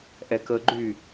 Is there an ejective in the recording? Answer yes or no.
no